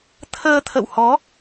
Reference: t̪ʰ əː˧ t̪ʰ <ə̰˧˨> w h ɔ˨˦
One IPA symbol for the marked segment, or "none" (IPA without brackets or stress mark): ə̰˧˨